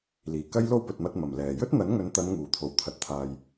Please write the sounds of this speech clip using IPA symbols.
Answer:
l iː˨˩ k ɐ˥ j l o˥ w p ɵ˨ t̚ m ɐ˧ t̚ m ɐ˨˩ m l ɛː˨˩ j ɵ˥ t̚ n̪ ɐ˨˥ n ŋ ɵ˨˧ n t̪ ɐ˨˧ n ŋ uː˨˩ t̪ʰ o˨˩ w t̪ʰ ɐ˨ t̚ t̪ʰ aː˨ j

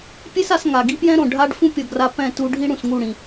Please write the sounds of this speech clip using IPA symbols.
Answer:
pʲ e˦ s a˧ s ŋ a˨ ɡ i˦ p j ɛ̃˦ ɾ õ˨ ɖʱ a˦ ɖ f ũ˦ pʲ ʌ˨ ɡ r a˧ p ɛ̃˦˨ t u˧ ɖʱ i˦ ɽ ũ˨ s ŋ u˦˨ ɽ ĩ˨

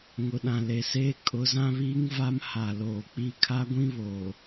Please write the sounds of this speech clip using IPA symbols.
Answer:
ŋ ʊ˨ ɗ ã˨ l e˨ s eː˦ kʼ ʊ˨˦ z ã˦ β iː˦ ŋ v a˦ m h a˨ l oː˨ k͡p i˦˨ kʰ a˦ ɡʷ ĩ˦ β oː˨

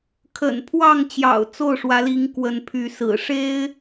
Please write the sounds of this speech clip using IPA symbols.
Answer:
kʰ ə̰˨˩ n pʰ w ɑ˥˨ ŋ t͡ɕ j ɑ̰˨˩ ʊ̯ t͡s o˥˨ ʊ̯ ʂ w ä˨˦ l i˨˦ ŋ k w ə˨˦ n pʰ y˨˦ s ɹ̩˨˩ ʂ e˦ ɪ̯

